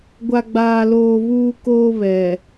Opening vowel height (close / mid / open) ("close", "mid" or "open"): open